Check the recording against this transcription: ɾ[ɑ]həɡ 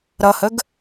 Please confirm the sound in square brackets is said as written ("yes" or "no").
no